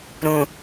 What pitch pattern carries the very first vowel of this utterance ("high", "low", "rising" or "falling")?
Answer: low